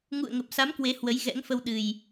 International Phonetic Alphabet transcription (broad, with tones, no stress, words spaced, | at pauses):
ŋṵ˧˨ə̯ŋə˨˩p̚sa˨˦m kwe˨˦hwə˨˦j ɣɛ̰˧˥ŋfə˧wɗɨ˨˩j